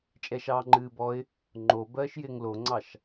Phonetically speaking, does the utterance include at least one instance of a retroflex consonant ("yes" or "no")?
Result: no